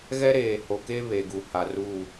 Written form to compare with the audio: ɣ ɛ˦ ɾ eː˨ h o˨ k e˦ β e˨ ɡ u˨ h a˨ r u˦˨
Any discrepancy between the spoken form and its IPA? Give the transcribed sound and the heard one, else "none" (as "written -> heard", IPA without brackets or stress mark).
none